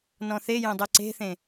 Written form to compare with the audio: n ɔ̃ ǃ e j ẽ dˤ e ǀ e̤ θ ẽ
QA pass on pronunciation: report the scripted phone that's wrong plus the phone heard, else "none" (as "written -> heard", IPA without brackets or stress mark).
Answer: ǃ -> θ